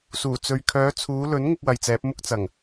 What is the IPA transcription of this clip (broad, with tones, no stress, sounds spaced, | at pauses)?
s uː˨˩ t͡s ɵ˨ ɥ kʰ œː˨˧ t͡sʰ uː˨˧ l ɵ˨˥ n ŋ ʊ˥ k̚ w ɐ˨ j t͡s ɛː˨˥ p̚ m ʊ˥ k̚ t͡s ɐ˨˩ ŋ